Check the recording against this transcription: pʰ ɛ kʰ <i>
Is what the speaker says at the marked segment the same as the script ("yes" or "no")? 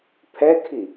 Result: yes